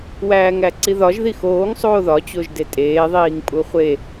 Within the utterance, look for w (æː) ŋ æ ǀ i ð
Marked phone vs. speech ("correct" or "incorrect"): correct